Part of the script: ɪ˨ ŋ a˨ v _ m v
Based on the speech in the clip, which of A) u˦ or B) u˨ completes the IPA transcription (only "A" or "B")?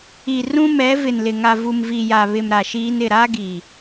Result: B